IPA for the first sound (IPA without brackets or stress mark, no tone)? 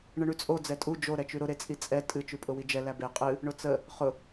ɳ